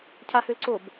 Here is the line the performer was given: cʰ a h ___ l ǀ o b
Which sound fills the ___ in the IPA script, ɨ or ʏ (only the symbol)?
ʏ